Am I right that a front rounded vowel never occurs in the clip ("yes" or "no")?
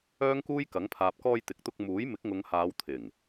no